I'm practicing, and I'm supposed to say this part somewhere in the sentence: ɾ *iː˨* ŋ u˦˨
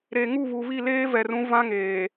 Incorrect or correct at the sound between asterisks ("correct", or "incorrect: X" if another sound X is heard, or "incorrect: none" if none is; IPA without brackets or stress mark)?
incorrect: eː˨